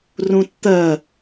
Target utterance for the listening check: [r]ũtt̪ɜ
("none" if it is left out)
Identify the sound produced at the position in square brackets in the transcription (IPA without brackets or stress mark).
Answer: r